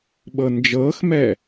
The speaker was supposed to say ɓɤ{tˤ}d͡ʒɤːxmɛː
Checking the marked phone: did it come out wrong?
yes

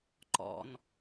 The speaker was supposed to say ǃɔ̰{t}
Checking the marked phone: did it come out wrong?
yes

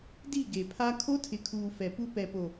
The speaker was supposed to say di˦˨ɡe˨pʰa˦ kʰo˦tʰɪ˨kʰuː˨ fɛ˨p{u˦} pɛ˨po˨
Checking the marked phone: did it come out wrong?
no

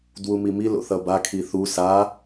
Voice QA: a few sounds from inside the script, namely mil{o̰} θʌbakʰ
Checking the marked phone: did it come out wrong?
no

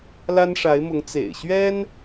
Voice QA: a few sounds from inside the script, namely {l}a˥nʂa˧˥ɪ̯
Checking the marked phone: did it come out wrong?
no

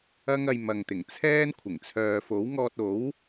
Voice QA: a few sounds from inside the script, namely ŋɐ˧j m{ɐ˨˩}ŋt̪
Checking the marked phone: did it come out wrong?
yes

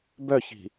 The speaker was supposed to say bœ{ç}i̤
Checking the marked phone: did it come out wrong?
no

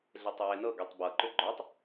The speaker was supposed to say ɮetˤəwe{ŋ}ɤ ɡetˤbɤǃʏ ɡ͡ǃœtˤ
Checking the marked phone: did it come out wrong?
yes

